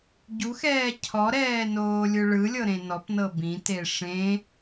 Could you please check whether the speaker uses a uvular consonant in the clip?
no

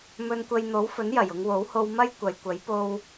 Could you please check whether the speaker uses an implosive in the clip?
no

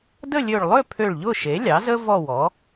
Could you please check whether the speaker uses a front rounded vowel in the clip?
yes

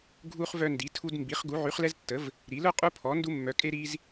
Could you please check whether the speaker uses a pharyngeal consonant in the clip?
yes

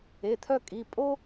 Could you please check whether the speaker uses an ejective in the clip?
yes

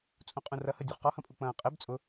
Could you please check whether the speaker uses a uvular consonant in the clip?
yes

